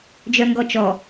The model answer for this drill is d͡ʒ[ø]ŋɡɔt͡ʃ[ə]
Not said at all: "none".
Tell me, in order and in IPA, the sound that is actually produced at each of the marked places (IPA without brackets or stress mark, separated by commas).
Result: œ, ɔ